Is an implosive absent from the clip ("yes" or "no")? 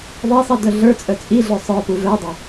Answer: yes